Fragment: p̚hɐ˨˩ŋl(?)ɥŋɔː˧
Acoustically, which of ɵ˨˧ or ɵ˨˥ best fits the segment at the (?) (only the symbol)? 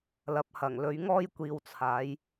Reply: ɵ˨˧